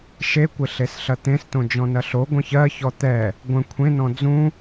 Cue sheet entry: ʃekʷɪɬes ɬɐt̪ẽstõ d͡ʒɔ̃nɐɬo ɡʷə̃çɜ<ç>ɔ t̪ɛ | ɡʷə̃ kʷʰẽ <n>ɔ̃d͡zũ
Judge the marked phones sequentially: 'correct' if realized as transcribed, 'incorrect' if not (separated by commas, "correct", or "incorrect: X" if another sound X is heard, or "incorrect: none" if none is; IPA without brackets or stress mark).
correct, correct